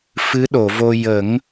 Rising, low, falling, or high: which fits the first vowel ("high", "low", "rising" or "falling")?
rising